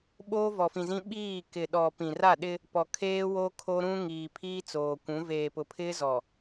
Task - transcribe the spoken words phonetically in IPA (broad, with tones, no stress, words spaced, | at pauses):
ɓoː˦vɔ˨fĩ˨zĩ˦ ɓiː˦˨kɪ˨ɗɔ˨ pĩ˨ra˦˨ɗɪ˦ | pɔ˨ kʰeː˦wo˦ kʰo˦ɾũ˦ ŋiː˨pʰiː˦t͡soː˨kʷũ˨˦ veː˨pʊ˨ pʰɪ˦ zɔ˨